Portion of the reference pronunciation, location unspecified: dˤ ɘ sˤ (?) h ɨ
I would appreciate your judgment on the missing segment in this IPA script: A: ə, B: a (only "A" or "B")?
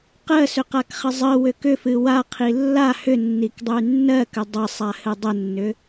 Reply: B